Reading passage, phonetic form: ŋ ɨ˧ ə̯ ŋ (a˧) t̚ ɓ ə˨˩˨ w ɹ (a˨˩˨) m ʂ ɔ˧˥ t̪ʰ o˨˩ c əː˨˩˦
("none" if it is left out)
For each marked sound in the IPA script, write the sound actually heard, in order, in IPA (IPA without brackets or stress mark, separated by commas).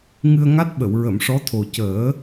a˦˥, ə˨˩˨